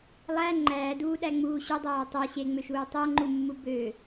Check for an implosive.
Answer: present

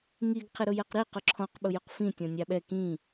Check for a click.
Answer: present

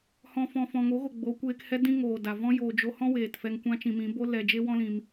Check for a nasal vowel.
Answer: present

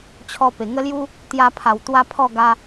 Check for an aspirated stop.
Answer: present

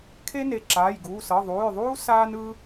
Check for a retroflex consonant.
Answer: absent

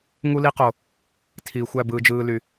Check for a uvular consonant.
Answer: present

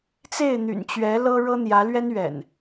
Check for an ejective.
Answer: absent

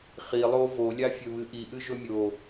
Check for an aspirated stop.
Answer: absent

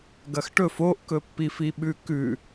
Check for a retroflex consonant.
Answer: present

